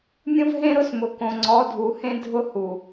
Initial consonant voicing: voiced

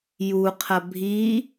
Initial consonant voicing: voiced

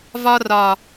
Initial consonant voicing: voiced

